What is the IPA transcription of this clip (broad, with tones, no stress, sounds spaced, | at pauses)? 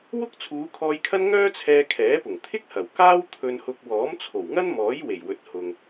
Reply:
w ʊ˥ k̚ t͡sʰ uː˨˧ kʰ ɔː˧ j kʰ ɐ˥ n ŋ œː˥ t͡sʰ ɛː˧ kʰ ɛː˨˥ p ʊ˨˩ ŋ t̪ʰ ɪ˥ k̚ h ɐ˨˩ w k aː˥ w t̪ʰ ɵ˧ n h ʊ˧ k̚ w ɔː˨˥ m t͡sʰ o˨˩ w ŋ ɐ˥ n m ɔː˨˥ j w e˨˩ j w ɵ˨˥ t̚ h ʊ˨ ŋ